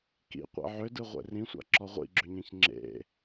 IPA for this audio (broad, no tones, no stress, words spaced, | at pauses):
kḭqʷḛ ʕʏdɯ ʁʷḛrĩsʷa̰ ǁɔʁʷḭɡ͡ǁʏɲẽç ŋ͡ǁḛ